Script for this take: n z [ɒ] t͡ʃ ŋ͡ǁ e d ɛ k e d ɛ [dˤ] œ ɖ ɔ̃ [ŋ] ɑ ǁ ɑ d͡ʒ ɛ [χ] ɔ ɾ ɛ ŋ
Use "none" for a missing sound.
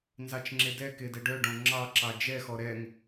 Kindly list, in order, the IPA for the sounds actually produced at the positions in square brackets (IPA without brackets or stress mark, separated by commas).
ɑ, ɖ, ŋ͡ǁ, x